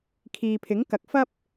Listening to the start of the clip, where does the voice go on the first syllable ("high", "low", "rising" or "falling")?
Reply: low